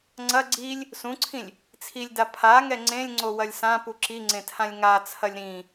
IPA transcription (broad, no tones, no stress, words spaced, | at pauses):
ŋ͡ǀɐ ɡ͡ǀilʲ | sũǀʰĩlʲ | t͡sʰilʲda pʰaŋɛ ŋ͡ǀẽlʲŋ͡ǀowɐlʲ sãpu ǁiŋ͡ǀẽtʰãlʲ ŋat͡sʰɐlʲ ɾĩ